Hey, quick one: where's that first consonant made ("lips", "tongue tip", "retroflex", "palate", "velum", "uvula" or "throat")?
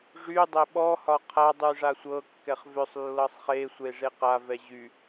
retroflex